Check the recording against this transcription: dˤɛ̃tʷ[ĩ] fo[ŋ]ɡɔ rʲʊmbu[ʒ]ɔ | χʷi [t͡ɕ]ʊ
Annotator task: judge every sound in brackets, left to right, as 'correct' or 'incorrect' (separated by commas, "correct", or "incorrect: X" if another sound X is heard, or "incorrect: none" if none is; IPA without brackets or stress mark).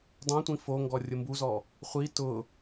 correct, correct, incorrect: z, incorrect: t